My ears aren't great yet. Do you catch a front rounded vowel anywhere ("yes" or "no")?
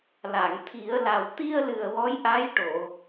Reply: no